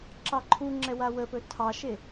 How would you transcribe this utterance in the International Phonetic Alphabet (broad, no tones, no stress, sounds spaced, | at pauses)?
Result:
ǁ ɑ ǃʰ u ŋ͡ǁ ɛ w a w ə p ɵ tʰ ɑ ʃ e